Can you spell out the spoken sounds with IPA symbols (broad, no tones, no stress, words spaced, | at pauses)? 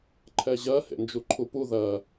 ǃʰɛʑɜ hḛnd͡ʒuǃʰupu ðɜ